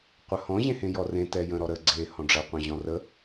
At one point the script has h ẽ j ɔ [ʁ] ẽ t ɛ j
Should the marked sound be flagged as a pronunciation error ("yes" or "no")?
yes